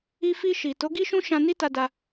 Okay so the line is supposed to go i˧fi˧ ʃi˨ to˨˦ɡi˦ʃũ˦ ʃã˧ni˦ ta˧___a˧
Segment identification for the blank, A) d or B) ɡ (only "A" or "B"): A